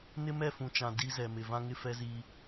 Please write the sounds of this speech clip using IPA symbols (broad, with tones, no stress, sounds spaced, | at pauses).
n ɪ˦ m ɛ˦˨ f ũ˨ t͡ʃ ã˨ d i˦ z ɛ˨ m ɪ˨ v ã˦ ŋ ɪ˦ f ɛ˦ z i˦